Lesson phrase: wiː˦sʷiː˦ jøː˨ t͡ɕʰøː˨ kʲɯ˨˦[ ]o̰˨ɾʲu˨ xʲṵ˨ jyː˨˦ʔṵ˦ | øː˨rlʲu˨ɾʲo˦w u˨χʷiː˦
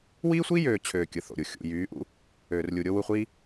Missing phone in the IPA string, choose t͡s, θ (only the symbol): θ